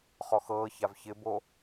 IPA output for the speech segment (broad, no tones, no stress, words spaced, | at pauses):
χɔxɤːçav çɪbo